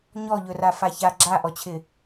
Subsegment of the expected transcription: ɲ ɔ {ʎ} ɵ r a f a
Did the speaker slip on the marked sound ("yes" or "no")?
no